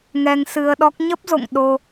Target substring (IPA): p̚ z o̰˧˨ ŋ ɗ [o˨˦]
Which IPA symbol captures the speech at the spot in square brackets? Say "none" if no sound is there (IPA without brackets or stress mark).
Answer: o˧